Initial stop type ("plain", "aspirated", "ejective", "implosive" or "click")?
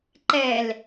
click